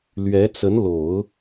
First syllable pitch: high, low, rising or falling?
rising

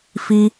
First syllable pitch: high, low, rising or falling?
high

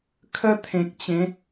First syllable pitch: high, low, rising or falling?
high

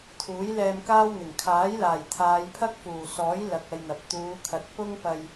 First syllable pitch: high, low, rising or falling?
rising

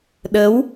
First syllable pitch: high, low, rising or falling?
rising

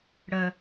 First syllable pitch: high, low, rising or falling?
low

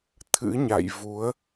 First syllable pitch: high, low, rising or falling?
rising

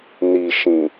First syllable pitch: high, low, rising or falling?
low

